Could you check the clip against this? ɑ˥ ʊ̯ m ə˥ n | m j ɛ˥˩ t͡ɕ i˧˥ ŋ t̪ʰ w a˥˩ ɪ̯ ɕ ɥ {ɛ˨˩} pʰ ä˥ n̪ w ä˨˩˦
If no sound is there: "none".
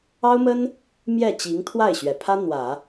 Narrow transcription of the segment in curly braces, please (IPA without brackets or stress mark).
ɛ˨˩